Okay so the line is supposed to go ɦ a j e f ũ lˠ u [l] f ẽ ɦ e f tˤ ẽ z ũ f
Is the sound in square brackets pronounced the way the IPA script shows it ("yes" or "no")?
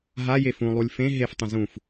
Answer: no